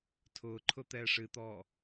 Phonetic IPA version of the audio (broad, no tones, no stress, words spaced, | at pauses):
tʰʊːǃʰʊ t̪ɛːʂɨt̪ɔː